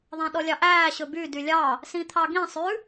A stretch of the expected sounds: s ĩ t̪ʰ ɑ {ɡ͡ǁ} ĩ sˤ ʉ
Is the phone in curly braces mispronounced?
yes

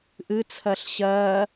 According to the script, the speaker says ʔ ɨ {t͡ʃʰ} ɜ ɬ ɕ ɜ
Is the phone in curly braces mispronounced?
yes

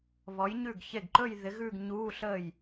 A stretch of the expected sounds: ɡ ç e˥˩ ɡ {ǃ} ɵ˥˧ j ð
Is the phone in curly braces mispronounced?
no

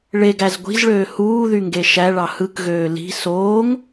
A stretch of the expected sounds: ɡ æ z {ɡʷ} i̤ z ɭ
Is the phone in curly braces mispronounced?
no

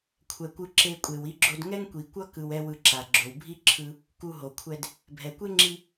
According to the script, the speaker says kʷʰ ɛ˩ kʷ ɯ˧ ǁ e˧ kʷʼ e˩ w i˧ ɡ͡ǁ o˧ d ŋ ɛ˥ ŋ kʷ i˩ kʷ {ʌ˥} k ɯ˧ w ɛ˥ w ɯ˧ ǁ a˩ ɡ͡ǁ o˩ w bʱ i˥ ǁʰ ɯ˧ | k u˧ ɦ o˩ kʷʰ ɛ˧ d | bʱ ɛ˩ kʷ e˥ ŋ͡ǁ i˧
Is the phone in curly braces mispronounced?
no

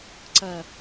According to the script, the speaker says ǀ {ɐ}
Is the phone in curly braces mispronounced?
no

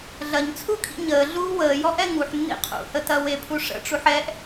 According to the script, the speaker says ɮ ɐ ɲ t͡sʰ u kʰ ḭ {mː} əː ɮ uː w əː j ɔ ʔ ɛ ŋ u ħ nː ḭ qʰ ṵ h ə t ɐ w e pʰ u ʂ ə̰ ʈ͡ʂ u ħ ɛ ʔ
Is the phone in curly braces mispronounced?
yes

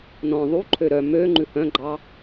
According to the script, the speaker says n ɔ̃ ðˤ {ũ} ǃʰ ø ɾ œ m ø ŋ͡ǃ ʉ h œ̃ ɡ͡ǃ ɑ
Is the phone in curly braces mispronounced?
yes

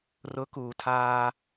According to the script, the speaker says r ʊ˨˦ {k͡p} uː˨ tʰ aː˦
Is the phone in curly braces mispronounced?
yes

